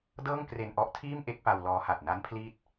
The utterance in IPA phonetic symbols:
d ɤː˥˩ ŋ k r e˧ n ʔ ɔ˦˥ ʔ tʰ iː˥˩ m ʔ e˥˩ k̚ p a˧ w l ɔː˦˥ h a˨˩ t̚ n a˦˥ n pʰ l iː˦˥ t̚

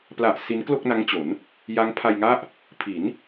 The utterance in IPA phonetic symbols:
p l a˨˩ ʔ s i˦˥ n k l o˥˩ k̚ n a˦˥ ŋ t͡ɕ o˩˦ n | j a˦˥ ŋ pʰ a˧ j ŋ a˥˩ ʔ | pʰ i˩˦ n

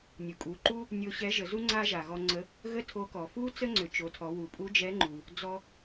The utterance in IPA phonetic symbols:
nʲ u˩ kʼ u˩˧ ǃ u˥ | nʲ o˧ ɕ ɛ˧˥ ʒ ə˩˧ z u˥ ŋ͡ǀ a˥ ʒ a˩ ɣ ɔ˧ ŋ͡ǀ ə˧˥ | ɣ ə˥ tʰ o˧˥ k ɔ˩ f u˥ t͡s ə˥ ŋ͡ǀ ʏ˩˧ t͡ʃ o˩˧ tʰ ɔ˩˧ w u˩ pʼ u˧˥ d͡ʒ ɛ˧˥ ŋ͡ǃ u˩ | d͡z ɔ˧

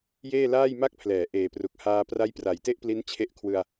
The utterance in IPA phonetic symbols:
j eː˥˩ l aː˥˩ j m a˥˩ k̚ pʰ l ɛː˩˦ ʔ eː˨˩ p r u˨˩ k̚ h aː˧ p r a˦˥ j p r a˨˩ j t e˥˩ ʔ p l i˦˥ n t͡ɕʰ e˦˥ ʔ kʰ w ɯ˧ a̯

